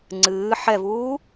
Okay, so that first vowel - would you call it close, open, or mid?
close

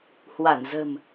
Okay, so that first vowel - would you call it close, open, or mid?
open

